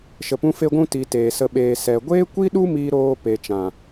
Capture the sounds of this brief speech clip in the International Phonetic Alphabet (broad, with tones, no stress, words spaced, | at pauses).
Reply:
ʃə˨pũ˧fe˧ɡʷũ˧ ti˨ teː˨sə˧ ɓeː˨sɛ˨ ɡʷeː˦kʷi˦ɗu˦ miː˧ɾoː˧pe˨t͡ʃã˨